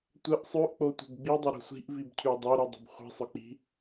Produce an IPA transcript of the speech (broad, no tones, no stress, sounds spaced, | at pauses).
tʷ ə ʔ sˤ ʉ ʔ k͡p o tʷ ə̤ b ɡ͡b i dˤ ʊ ɾ o̤ sʷ i̤ ʔ v i b cʰ ʉ dˤ o ɾ i dˤ ə̤ b χʷ i̤ sˤ ʊ k͡p i̤